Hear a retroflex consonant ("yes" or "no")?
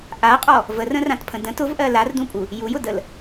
no